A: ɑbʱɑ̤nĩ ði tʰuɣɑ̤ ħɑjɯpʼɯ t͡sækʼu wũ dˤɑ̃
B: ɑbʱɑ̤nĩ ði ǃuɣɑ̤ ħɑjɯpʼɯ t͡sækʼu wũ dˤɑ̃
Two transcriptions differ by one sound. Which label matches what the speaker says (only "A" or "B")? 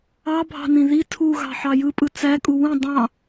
A